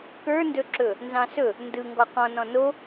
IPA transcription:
kə˞ndɵǁɵ | nzɑ̃sɵ | ndɯ ŋɡɔqɔ̃ nɔ̃no

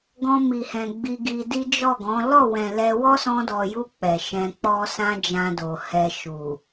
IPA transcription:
ɡɔ̃˧mi˨hɛ̃˨ ɡ͡bi˧ɡi˧di˦ d͡ʒɔ˦˨ɡɔ̃˨˦ lɔ˦˨wɛ̃˨ lɛ˧ wɔ˦sɔ̃˧dɔ˨ju˧ k͡pɛ˨ ʃɛ̃˧k͡pɔ˦sã˦ d͡ʒã˧do˨hɛ˧ ʃu˨

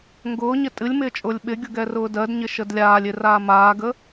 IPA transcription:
ŋɡʊːɲɪ tʼɨlʲmɪːt͡ʃʼʊːlʲ ɓɪɡʲʊɡɛrʊː dɜdɲɪʃəd lʲaːlʲɪraː maːɡə

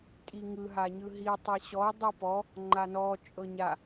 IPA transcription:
tʼiŋɯ ɦaɲɯɦi tˤeɕɔo̯ dˤɯpɔ | ŋ͡ǃanɔ t͡ʃʼɤɲa

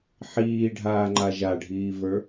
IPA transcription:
ħiːɖʱaːŋ͡ǃa ʒaɖʱiːvə˞

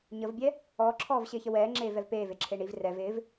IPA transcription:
ɲəvbʲɛ | ɔːǁʰɔːvɕɪːçə wɛːŋ͡ǁeːvɛv peːveǁʰe ɳiv rɛv ɪːv

